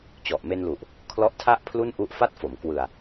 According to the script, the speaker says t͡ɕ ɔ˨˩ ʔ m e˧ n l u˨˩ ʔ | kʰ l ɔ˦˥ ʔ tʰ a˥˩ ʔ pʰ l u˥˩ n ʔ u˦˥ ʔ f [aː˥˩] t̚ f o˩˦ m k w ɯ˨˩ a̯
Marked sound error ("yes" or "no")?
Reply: yes